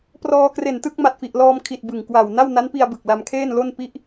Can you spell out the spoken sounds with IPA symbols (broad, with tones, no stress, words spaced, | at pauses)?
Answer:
prɔː˧kre˨˩ntɯ˥˩k̚ ma˨˩t̚fi˨˩ʔlɔː˧mkʰi˨˩t̚ bɯ˨˩ŋ kwa˨˩w na˥˩wna˦˥npi˧a̯ bɯ˨˩k̚ la˧mkʰeː˥˩nlo˥˩n pi˥˩ʔ